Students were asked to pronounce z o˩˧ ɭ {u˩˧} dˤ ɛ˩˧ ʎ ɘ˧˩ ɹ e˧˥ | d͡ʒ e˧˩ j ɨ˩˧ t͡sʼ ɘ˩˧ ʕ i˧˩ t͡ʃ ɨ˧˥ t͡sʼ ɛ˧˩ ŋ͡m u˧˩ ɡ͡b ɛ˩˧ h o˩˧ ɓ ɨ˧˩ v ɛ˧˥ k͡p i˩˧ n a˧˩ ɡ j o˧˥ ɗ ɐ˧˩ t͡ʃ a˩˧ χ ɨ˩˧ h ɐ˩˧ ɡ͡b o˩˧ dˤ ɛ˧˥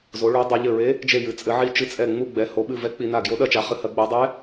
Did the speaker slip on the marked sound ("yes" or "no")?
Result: no